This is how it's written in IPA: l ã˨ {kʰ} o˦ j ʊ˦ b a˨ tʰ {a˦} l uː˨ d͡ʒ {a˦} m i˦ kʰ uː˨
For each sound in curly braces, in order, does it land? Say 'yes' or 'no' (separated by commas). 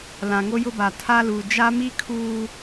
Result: no, yes, yes